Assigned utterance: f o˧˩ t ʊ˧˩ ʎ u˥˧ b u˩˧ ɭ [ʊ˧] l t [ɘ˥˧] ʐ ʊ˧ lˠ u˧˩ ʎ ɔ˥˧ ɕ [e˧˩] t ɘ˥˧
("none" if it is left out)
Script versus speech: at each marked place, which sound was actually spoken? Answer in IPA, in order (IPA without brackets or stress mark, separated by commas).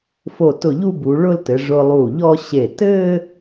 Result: ʊ˥˧, ɘ˩˧, e˧˩